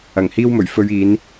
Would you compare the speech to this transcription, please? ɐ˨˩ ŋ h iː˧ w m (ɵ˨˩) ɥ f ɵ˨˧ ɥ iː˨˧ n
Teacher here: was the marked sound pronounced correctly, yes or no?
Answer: yes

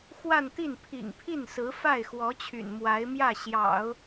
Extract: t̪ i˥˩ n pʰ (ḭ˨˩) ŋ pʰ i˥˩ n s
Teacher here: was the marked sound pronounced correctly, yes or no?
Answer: yes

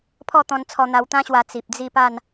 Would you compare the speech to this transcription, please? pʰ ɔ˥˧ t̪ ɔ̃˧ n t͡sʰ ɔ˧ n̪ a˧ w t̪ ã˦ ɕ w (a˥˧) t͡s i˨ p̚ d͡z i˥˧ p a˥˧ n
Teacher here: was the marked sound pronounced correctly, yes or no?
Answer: no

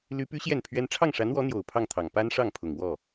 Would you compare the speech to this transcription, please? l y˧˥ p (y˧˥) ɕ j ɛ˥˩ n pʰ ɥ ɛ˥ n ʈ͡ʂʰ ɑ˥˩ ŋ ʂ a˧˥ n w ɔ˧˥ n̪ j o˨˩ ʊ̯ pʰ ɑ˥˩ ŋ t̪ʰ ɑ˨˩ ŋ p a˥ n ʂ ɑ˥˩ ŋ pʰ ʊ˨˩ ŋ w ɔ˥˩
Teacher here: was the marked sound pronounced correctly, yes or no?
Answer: yes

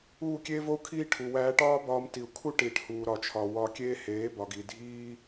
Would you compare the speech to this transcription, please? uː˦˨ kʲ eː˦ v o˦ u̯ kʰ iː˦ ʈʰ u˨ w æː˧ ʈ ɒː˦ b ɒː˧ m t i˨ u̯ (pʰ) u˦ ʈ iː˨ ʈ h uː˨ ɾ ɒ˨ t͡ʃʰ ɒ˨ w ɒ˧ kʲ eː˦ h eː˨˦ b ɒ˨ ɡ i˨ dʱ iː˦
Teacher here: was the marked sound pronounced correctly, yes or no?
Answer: no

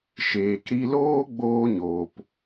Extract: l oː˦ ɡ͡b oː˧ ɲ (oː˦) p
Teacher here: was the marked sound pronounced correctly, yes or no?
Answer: no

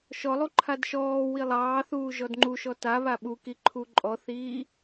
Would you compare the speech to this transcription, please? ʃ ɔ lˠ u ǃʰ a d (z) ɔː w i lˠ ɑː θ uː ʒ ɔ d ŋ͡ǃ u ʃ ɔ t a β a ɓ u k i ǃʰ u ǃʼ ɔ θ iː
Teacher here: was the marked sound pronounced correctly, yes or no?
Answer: no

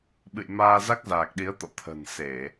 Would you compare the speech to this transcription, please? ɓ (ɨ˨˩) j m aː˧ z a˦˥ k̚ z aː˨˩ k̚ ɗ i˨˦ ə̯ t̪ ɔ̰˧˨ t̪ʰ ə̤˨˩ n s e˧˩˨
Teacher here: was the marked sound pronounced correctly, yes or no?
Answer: no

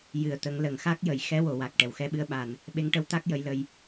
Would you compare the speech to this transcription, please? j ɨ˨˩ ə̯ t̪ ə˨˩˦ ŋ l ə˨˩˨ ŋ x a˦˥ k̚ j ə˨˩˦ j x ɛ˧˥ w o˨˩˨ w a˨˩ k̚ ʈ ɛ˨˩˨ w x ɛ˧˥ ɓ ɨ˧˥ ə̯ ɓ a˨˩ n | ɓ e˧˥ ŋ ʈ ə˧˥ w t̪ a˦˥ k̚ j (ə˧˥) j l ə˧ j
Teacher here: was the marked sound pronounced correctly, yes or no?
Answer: yes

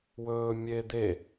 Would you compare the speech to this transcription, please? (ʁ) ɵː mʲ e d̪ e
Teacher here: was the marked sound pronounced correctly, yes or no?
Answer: no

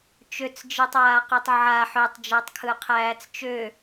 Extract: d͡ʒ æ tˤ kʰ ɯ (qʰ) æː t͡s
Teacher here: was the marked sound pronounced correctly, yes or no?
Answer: yes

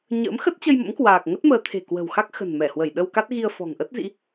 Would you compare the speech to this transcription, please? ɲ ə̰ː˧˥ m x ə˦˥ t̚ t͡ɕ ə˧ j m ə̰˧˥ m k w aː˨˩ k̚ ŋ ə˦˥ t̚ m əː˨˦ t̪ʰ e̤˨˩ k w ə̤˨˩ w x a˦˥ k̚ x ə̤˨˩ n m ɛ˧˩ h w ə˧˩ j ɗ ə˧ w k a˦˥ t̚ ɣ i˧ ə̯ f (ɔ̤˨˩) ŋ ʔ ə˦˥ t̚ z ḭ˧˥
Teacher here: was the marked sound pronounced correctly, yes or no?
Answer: yes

